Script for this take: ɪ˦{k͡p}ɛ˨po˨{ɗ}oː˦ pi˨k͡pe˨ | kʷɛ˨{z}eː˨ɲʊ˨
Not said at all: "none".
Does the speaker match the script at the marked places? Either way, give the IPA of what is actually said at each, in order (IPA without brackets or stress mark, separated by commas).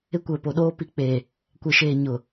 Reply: kʷ, ɗ, ʃ